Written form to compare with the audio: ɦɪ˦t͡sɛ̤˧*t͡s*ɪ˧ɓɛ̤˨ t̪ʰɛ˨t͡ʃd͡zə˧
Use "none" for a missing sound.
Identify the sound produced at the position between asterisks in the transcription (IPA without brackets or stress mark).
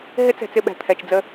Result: t͡s